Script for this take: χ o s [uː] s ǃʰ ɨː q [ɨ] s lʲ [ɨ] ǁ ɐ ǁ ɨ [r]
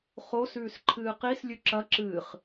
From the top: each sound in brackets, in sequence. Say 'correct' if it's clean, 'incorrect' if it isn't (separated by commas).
incorrect, incorrect, incorrect, incorrect